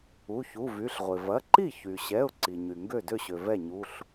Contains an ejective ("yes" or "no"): no